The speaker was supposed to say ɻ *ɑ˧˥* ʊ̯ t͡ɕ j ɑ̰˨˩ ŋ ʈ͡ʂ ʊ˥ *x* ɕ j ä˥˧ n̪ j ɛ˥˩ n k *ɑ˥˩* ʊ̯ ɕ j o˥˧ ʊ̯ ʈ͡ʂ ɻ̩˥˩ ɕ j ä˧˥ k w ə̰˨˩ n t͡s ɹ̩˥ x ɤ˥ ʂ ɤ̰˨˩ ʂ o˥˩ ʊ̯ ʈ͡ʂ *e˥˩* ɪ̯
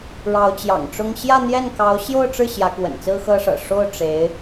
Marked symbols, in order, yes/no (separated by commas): yes, no, no, no